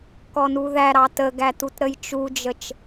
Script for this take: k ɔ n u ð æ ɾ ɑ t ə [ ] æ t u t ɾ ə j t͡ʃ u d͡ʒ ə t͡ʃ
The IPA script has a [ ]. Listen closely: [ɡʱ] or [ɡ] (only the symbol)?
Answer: ɡ